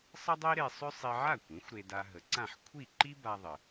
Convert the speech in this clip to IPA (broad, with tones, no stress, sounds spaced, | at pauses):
sˤ ə˥ dˤ i˥ ɾ e˧ sˤ ʏ˥ sˤ i˧ ʕ a˥˩ kʷ ẽ˩˥ xʷ ɾ e˧ d a˧ ɦ ə˩˥ ǀ ã˥˩ ħ kʷʰ i˥˩ ǃ i˥ b a˧ ðˤ ə˩